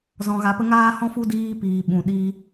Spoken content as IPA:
z ɔ̃˧ ɣ a˧ p ə˦ ŋ aː˦ h ɔ̃˦ f u˦ d iː˧ p iː˨ ɓ ũ˨ ɗ iː˧

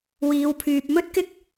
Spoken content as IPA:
w iː˨˧ w pʰ yː˨ p̚ m ɵ˥ t̚ k ɪ˥ k̚

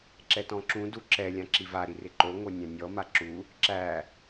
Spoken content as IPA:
ǁ ɛ t ɔ̃ ǁ ũ d u ǁ ɛ lʲ ã ǁ i v a ɾ i r ɪ ǃ o ŋ o nʲ æ̃ nʲ ɔ m a ǁ u | ǁ æ

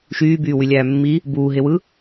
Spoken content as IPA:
ʃ yː b yː w y lʲ æː mː i | b uː ɦ e w ɯ

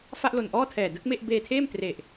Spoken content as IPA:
f a˥˩ ʔ l o˨˩ n ʔ ɔː˥˩ tʰ ɛː˨˩ d ɯ˦˥ k̚ m e˥˩ ʔ b eː˧ tʰ eː˥˩ m t r e˨˩ ʔ

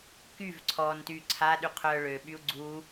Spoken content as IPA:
k y v ǀʰ ɔ n t y ǀʰ a ɗ y qʰ œ ɭ ø ɓ y u̯ ɡ͡ǀ u

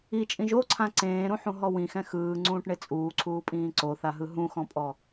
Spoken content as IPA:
i t͡ʃʼ ĩ ʒ o ǀʰ ã ǀ ẽː ɾ ũ ħ ũ ɦ ɔ w ĩ x ɛ̃ x ɯː ŋ͡ǀ ũː ʈ ɳ e t͡sʼ uː ǀʰ uː pʼ ĩː ǀ o θ a ɦ ɯ ɦ ũ x ɔ̃ pʼ ɔ

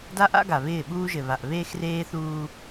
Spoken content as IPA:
d a˦ ʔ a̰˦ ɡ a˨ β ɪː˦˨ ɓ uː˦ ʒ ɘ˨ β a˨ ʔ β eː˦ x r eː˦ θ uː˦

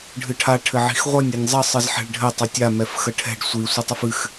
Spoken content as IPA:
ɖʱ ɨ ʈʰ a ʈʰ ɘ ʕ i̤ x ʁʷ ɐ nʲ a nʲ zˤ ə sˤ ɨ z ħ ɛ̤ ɭ ɖʱ ɘ tˤ ɘ tʲ a m ɛ f x ə ʈʰ ɛ̤ ɖ sʷ i sʷ ə tˤ ɨ f ɨ x

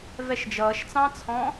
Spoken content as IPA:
v ɛ ʃ d͡ʒ ʌː ʃ t͡s ɑ̃ t͡sʰ ɔ̃ː

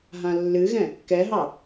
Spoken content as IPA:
ɦ ã lː ɨ ɣ ɛ̃ | k ɛ ɦ ɑ

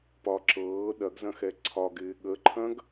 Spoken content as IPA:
p ɒ ǁ ɤː ɗ ɐ ɡ z ɐ̃ x ɛ ǀʰ ɒ ɡ ɪː ɠ ə ǃʰ ɐ̃ ɡ

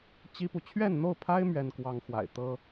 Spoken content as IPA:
t͡ɕ i˥ p u˨ t͡ɕʰ ɥ ɛ˥˧ n n̪ o˥˩ ʊ̯ pʰ a˥ ɪ̯ m ɥ ɛ˥ n k w ɑ˥ ŋ x w a̰˨˩ ɪ̯ t̪ ɤ˥

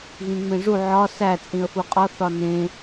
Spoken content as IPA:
ɣ ĩ ŋ͡m ẽ ʐ u ʕ ɒ s æ t͡sʼ ĩ ə̯ f u qʼ ɒ θ ɒ n ẽ

